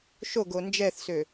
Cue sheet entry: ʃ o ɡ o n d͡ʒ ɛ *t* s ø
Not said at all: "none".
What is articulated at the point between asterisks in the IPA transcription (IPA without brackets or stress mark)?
θ